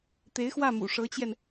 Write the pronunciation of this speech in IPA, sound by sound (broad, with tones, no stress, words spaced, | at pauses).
t̪e˧˥ɪ̯xwä˥˩mṵ˨˩ ʂɤ˧˥t͡ɕjɛ˧n